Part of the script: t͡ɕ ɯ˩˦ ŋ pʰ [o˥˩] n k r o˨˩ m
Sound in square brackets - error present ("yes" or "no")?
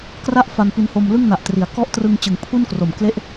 yes